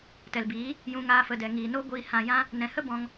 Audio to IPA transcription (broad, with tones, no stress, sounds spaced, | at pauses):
t ɛ˨ l b iː˨˦ | j ũ˧ ŋ aː˧ f ə˨ d ɛ˨ ŋ iː˨ n o˦ ɡʷ iː˧ h ã˧ j ã˦ | n ɛ̃˨ h ə˦ b ɔ̃˧ ŋ